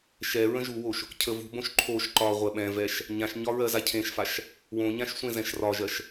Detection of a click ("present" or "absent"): present